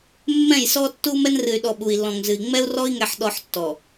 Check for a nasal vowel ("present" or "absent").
present